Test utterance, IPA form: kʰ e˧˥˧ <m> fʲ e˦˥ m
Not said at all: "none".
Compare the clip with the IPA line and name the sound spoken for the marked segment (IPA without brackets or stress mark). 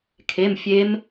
m